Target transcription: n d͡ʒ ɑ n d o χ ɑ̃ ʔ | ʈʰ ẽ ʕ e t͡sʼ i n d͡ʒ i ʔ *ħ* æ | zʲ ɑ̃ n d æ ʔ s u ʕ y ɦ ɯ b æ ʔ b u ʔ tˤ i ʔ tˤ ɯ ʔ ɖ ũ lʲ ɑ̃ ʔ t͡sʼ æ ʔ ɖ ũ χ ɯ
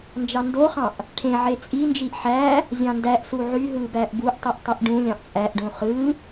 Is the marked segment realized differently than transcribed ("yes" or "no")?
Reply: no